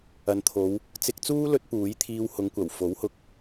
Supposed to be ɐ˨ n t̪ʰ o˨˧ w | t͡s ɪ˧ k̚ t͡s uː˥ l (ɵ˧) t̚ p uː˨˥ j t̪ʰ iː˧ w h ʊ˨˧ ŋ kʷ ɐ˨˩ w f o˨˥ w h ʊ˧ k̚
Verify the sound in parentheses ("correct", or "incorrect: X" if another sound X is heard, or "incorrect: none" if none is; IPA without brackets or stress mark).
correct